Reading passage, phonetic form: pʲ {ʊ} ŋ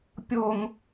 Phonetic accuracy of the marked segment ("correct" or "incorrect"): correct